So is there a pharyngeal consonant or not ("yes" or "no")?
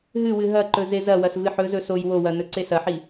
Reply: yes